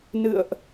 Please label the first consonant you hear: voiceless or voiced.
voiced